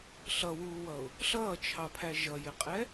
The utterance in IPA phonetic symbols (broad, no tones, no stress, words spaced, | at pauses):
ɬʌwuːwʌʊ̯ | ɬʌːt͡ʃʰɑpʰæ ʒʌjɪqʼɛ